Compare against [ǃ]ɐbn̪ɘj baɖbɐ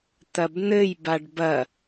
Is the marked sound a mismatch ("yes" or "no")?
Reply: yes